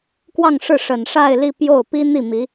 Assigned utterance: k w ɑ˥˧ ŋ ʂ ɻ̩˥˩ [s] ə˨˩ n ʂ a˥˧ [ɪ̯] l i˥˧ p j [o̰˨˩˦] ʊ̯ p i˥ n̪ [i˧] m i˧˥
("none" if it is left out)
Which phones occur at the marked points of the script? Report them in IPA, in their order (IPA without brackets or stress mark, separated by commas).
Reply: ʂ, ɪ̯, o˥˩, i˥˩